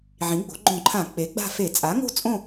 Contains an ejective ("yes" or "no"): yes